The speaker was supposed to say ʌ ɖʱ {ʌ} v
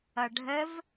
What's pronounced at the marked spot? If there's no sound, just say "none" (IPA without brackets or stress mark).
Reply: ə